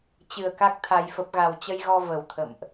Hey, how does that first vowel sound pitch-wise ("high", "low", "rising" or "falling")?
low